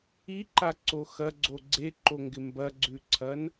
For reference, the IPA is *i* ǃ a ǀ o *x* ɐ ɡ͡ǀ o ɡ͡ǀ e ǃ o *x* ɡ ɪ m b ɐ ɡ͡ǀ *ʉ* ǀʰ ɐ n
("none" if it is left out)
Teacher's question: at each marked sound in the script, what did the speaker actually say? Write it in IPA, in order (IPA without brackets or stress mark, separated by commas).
i, x, ŋ, ʉ